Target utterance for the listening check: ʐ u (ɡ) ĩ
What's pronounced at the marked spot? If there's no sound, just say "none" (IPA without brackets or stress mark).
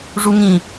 ŋ